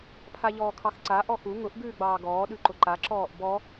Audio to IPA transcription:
pʰ a ʎ ɔː kʰ ɑ x ǀ a ʔ ɔ x u ŋ ʊ ʔ ɡ ʉː ɡ͡b ɑː ɡ ɔː ɗ ʉ ǃ ʊ ǃ a ǁ ɔː ʔ b ɔ

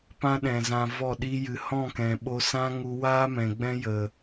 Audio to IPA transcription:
p ã˦ ɗ ɛ̃˨ z ã˨ v ɔ˦˨ ɗ i˦ j ɨ˨ h ɔ̃˦˨ k ɛ̃˨ ɓ o˧ s ã˦ ŋ u˧ w aː˦ m ɛ̃˨ ɡ͡b ɛ̃˦ j ə˨

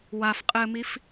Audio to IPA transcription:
w a f qʼ ɘː m i f

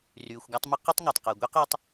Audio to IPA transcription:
r yː˩ xʷ ɡ a˦ tˤ m ə˥ q y˥ tˤ ŋ a˩ tˤ q əː˩ ɡʷ i˥ q y˦ tˤ

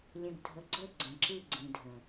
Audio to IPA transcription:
lʲ ə̃˨ ɡ dʱ ə˨ ɡ͡ǀ ə˦˨ ɡ͡ǀ ə̃˨ ǁ ɯ˦˨ ɡ͡ǀ ĩ˨ dʱ ə̃˨

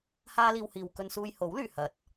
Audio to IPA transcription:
h aː˥ l iː˧ w h iː˨ w k ɵ˧ n s uː˧ j h o˨˥ w l yː˨˩ h ɐ˨˥ t̚

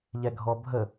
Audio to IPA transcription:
ʎ ɛ ɡʱ ɔ bʱ ə

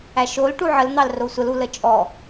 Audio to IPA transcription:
æ ʃ o l ʈ u ʕ ə l n̪ ɑ l r o sʷ ə l u l ə t͡ʃʼ ɔ

